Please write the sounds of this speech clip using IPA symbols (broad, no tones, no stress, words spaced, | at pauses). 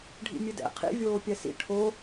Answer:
ɖʱḭmʲɨdɛ̰ qʰḭ vʲoːpʲɛsḭ ʈʰo